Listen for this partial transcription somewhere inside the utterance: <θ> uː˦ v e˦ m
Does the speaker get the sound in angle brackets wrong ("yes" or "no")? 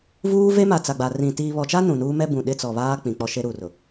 yes